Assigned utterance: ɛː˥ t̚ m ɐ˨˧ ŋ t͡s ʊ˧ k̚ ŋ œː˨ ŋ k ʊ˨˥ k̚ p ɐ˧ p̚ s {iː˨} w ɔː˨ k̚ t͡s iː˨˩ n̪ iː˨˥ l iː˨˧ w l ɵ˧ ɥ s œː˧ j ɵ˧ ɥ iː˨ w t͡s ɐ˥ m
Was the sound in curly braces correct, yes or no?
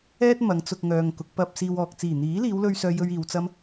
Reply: no